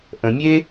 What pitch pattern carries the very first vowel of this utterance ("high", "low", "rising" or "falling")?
low